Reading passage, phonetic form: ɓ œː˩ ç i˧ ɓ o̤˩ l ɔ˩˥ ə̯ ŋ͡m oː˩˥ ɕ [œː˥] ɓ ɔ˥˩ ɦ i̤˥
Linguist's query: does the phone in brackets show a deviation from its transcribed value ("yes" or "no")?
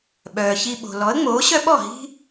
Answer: yes